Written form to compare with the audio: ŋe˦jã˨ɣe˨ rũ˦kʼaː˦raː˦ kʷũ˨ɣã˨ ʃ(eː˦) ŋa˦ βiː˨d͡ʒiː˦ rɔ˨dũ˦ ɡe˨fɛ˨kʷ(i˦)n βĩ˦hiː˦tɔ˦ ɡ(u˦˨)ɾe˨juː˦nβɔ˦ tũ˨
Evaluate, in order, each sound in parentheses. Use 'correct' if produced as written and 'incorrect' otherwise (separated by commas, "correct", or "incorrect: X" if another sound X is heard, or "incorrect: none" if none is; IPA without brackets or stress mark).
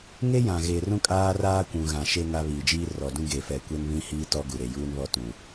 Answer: incorrect: e˦, incorrect: e˦, incorrect: u˨